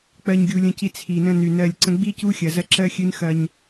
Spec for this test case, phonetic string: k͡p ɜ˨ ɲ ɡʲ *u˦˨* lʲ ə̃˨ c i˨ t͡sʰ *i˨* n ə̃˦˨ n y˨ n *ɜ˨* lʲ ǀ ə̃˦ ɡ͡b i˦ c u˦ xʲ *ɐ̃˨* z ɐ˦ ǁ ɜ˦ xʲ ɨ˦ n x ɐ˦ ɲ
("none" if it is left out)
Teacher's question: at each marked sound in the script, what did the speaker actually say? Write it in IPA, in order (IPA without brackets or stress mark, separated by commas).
u˨, i˨, ɜ˦˨, ɐ˨